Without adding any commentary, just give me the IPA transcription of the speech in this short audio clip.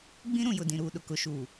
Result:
ɡ͡bĩ˦ɾũ˨jʊ˨ dĩ˨ɾuː˨ ɗʊ˨kʊ˨ ʃuː˨

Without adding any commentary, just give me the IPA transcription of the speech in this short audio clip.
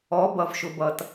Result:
ɔ˩˧bʌ˩v ʃʊ˩bʌ˩t

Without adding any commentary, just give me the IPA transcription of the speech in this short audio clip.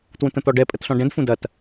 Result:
twũtə̃t̪ɔɖɛ pʼətɬɔ̃ɖɛ̃d fũdɐt

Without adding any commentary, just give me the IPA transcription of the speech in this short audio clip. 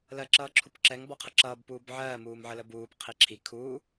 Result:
lɜǁʌːǁʰupǁɛŋ bɔqʰəǁʌːb puːbʕɜː muːmʕələbuːp qʰiǁʰi kʰuː

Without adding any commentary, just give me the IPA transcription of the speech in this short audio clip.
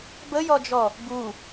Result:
bəjɔd͡ʒɔ | bu

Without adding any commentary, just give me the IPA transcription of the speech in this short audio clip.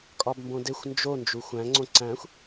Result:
kʼɒbmbõdexʷ nd͡ʒo nd͡ʒuxʷæ̃ ŋ͡ǀõǀæ̃xʷ

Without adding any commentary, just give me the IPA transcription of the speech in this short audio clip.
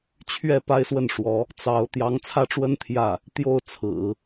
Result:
t͡ɕʰɥɛ˥˩ pa˥ɪ̯swə˥˩nʂwɔ˧˥ | t͡sɑ˧˥ʊ̯ t̪jɑ˧˥ŋt͡sʰä˥˩ʈ͡ʂwə˥n t̪ʰjä˥˩ | t̪jo˥˩ʊ̯t͡sʰɹ̩˨˩˦

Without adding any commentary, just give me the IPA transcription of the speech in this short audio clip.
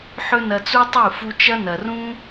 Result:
ħɵ˦nɐ˧t͡su˦tˤɨ˦˨ fu˧t͡ʃɐ˦nɐ˨rũ˦

